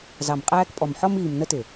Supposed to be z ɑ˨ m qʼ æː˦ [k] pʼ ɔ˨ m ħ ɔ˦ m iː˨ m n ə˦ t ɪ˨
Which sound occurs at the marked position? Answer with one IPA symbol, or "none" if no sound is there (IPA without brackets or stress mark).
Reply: k